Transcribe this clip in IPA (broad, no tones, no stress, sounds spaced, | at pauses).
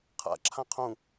qʰ a̰ ǁʰ ã qʰ ũ